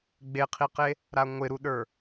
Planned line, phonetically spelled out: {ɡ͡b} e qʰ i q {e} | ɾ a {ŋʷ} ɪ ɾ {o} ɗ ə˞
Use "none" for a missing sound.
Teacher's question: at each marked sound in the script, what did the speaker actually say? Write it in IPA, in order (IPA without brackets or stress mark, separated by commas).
ɡ͡b, e, ŋʷ, u